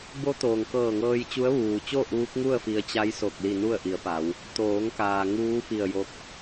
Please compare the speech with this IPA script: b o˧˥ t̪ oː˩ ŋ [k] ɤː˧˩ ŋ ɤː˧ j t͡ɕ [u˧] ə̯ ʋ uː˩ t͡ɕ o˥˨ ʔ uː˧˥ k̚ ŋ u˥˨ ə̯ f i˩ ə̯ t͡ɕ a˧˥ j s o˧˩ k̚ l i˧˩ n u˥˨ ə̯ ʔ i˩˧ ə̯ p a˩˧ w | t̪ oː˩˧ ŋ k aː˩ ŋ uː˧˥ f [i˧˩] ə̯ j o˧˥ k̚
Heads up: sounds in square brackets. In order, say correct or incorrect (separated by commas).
correct, incorrect, correct